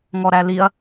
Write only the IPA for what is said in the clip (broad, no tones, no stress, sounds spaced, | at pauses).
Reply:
ŋ ɔ ɾ æ l i ɐ̯